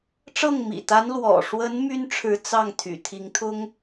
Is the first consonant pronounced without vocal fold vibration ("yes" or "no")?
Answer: yes